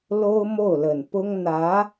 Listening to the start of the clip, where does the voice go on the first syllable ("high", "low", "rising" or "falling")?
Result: high